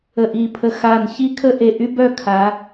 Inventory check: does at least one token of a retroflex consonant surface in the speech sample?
no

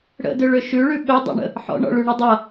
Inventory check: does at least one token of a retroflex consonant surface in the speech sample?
yes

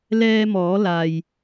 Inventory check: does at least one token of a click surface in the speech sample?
no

